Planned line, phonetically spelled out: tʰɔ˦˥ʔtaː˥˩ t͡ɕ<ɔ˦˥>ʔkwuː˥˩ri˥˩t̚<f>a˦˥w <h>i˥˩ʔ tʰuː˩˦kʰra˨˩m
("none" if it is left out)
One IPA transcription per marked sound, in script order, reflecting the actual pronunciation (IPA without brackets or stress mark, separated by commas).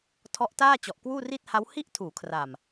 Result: ɔ˨˩, h, h